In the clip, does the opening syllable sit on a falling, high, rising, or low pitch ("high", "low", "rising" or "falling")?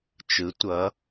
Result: rising